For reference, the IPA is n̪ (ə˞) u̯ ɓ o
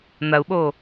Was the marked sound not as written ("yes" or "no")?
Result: yes